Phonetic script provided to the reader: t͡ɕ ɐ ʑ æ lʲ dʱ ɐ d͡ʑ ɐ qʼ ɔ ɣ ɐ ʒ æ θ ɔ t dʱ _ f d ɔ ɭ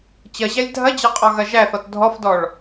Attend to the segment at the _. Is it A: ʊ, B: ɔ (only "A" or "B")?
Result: B